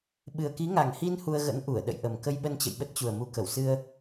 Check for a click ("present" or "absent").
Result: absent